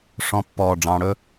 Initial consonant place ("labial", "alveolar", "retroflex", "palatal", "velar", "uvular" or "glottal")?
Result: retroflex